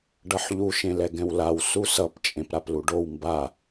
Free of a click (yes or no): yes